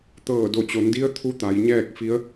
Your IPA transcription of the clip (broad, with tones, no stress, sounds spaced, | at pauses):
t̪ ɤː˧˩ d o˧˩ t͡ɕ o˩˧ n d i˧˥ ə̯ t̪ʰ u˧˥ t̪ a˩˧ j ɲ ɛː˥˨ k̚ f i˧˥ ə̯